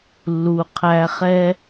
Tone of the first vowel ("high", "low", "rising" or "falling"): low